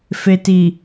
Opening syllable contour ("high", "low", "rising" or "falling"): low